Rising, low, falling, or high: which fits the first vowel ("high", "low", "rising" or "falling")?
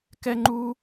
high